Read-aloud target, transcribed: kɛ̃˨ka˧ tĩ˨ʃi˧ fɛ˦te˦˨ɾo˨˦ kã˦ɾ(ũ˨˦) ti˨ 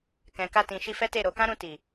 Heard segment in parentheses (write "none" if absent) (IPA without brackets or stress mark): ũ˧